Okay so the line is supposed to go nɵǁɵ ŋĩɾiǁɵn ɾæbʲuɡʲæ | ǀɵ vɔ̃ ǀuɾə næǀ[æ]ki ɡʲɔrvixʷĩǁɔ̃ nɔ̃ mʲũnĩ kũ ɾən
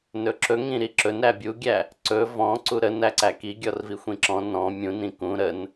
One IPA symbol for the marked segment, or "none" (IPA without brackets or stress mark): æ